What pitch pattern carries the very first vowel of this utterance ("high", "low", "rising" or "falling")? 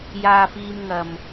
high